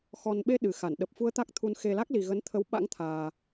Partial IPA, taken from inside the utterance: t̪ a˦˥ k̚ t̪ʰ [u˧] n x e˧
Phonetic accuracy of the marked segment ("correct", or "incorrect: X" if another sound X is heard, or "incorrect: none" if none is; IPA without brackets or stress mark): correct